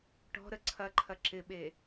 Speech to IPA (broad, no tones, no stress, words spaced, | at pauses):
ʈɔ̤ɾə ǀʰɐǃʰɐ ǁɪɓe